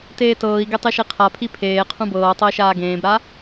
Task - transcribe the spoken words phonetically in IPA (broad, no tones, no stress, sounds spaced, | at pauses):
t eː t ɤː i̯ ɡ e tˤ i ʃ i qʰ a pʰ i pʰ eː qʰ ũ b ɤː tˤ ɤ i̯ ʃ aː ɡ ẽː b ɾ a